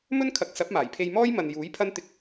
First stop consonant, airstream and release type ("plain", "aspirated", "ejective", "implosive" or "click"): aspirated